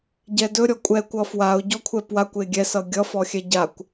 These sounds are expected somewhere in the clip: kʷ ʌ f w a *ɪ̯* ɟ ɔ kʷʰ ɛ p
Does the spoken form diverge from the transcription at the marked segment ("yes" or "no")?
yes